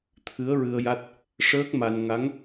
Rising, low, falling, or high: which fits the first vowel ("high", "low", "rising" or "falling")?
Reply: rising